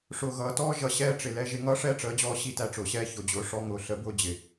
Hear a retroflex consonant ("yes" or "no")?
yes